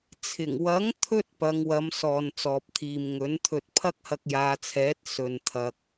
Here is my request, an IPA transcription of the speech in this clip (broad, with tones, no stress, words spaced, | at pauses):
t͡sʰɪ˨˩ŋwɐ˨˥ŋt̪ʰɵ˧t̚ pɐ˨˧ŋwɐ˨˧m sɔː˨n t͡sɔː˨p̚t̪ʰiː˨mŋɵ˨˥nt̪ʰɵ˧t̚ pʰɐ˥k̚hɐ˧k̚jaː˨˧t͡sʰɛː˨˥t̚ sɵ˨n t̪ʰɐ˨k̚